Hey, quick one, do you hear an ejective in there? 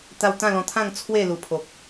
no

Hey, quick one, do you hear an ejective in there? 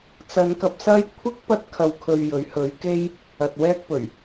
no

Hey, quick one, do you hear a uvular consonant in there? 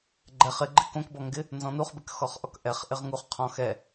yes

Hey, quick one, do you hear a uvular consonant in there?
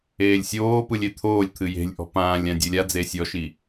no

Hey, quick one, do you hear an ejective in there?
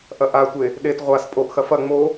yes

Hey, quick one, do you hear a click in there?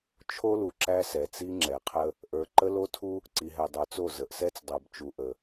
yes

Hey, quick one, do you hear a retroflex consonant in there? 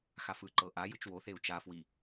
no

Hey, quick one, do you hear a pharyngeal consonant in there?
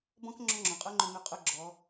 no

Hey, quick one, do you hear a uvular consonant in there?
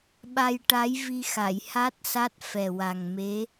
no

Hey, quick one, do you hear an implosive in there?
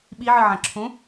yes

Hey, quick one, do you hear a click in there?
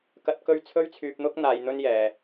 no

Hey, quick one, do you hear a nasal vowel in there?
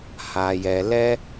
no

